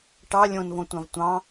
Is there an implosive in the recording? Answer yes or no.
no